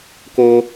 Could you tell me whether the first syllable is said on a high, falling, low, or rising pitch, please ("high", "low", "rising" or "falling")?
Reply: high